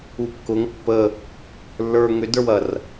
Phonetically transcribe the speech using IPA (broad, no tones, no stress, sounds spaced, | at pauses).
u kː ʊ ŋ pː ə | lː ə˞ ŋ ʏ d ə˞ w ɐ r